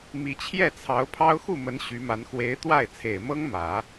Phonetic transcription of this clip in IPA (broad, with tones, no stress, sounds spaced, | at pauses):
m i˧˥ t͡ɕʰ j ɛ˥˩ t͡sʰ ɑ˧˥ ʊ̯ pʰ ɑ˥ ʊ̯ x u˥˩ m ə˧˥ n ɕ y˧˥ m a˧˥ n x w e˧˥ ɪ̯ t̪ w a˥˩ ɪ̯ t͡sʰ e˨˩ ɪ̯ m ɤ˥ ŋ m ä˨˩˦